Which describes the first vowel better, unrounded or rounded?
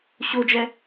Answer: rounded